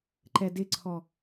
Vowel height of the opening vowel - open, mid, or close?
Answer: mid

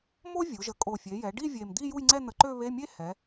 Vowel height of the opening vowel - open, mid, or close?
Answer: mid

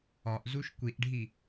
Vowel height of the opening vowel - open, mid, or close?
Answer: open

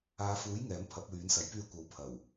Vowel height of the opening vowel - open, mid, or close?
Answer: open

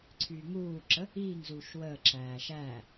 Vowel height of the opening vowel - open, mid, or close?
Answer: close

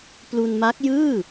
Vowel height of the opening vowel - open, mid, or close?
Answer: close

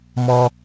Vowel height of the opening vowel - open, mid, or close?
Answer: mid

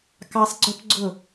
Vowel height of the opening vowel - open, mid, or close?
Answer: open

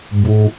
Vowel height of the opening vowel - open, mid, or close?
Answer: close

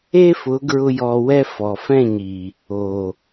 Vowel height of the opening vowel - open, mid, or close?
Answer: mid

